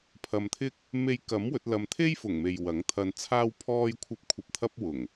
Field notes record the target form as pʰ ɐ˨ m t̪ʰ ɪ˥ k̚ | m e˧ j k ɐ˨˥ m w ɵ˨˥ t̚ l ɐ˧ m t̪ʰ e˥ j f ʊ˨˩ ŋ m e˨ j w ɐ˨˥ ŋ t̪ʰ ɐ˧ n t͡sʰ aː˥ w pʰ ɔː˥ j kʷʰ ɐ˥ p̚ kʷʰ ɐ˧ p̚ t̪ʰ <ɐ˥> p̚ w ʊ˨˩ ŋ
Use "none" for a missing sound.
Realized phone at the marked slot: ɐ˥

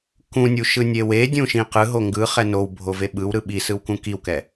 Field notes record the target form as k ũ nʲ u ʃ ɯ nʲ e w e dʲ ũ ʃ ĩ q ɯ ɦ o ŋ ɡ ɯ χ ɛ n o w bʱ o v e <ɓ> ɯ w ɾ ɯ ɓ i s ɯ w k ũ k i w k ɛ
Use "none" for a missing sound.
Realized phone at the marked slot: ɓ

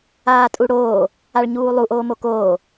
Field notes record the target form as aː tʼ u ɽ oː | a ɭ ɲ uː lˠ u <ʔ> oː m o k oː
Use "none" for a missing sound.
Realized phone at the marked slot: ʔ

